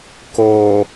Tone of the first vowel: low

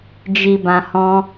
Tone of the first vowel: low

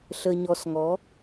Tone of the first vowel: low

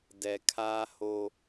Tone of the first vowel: low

